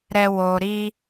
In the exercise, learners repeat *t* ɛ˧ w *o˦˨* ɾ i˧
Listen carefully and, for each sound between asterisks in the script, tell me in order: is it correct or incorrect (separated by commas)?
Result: incorrect, incorrect